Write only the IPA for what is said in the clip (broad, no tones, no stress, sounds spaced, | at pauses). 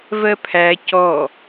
v ɜ pʰ æ c ɔ